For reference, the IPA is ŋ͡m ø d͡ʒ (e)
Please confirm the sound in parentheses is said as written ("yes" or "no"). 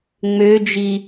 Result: no